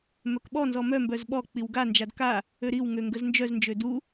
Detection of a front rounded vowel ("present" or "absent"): present